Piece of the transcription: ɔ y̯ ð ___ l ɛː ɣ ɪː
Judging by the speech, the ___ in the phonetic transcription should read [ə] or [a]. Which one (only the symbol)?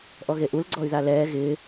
a